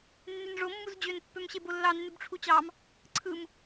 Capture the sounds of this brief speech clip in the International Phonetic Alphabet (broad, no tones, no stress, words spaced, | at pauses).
nːynʐo mːuzd͡ʑøn pːømɕebolːɑ nːybʈ͡ʂʰut͡ɕɑm | ǀʰɯm